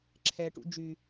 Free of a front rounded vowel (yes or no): no